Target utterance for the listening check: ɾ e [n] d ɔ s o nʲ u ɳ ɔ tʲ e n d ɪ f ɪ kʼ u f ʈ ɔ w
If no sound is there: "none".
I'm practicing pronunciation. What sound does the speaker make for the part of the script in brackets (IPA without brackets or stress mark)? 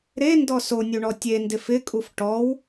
n